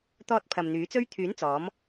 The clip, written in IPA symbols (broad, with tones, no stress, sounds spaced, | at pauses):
t̪ ɔː˧ t̚ pʰ ɐ˨ m n̪ yː˨˥ t͡s ɵ˥ ɥ t̪ʰ yː˨˥ n t͡s ɔː˨˥ m